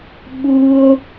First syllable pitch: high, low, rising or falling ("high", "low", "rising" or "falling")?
high